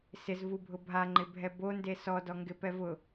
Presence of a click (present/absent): present